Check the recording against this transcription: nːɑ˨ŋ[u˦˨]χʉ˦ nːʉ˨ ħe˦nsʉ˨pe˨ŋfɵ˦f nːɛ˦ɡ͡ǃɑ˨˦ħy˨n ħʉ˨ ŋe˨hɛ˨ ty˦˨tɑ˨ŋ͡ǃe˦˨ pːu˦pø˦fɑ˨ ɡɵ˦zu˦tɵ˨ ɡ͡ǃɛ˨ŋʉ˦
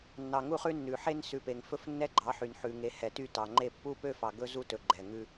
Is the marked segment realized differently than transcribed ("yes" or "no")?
no